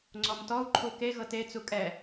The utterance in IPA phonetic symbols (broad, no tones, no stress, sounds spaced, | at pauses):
ŋ͡ǀ ɔ m t ɔ u̯ ǃʰ u k e ɣ ɤ t e t͡s u kʼ ɛ